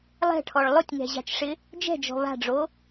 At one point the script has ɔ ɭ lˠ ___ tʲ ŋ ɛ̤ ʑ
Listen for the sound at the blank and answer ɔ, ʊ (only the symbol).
ʊ